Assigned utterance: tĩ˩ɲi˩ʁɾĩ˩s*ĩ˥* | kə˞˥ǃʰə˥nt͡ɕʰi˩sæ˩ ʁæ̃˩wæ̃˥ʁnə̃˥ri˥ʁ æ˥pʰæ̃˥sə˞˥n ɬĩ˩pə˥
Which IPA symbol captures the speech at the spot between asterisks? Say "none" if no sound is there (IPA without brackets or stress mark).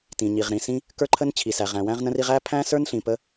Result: ĩ˥